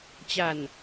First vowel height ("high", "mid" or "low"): low